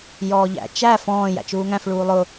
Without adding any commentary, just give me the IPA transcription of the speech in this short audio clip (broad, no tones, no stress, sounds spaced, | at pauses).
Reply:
j ɔː ʎ æ̰ t͡ʃ æ f ɔ̃ː j æ̰ t͡ʃ uː ŋ æ̃ f ɭ uː lˠ ʊ